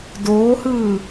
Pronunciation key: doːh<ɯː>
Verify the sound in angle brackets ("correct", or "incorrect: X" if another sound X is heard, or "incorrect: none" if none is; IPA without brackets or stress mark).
correct